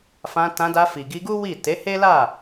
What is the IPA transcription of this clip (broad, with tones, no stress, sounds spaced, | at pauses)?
f ã˧ t ã˧ d a˧ f i˨ ɡ i˧ ɡ u˦ w i˦˨ t e˨˦ h e˦ l a˦˨